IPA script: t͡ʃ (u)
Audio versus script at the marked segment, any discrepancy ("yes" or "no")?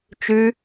yes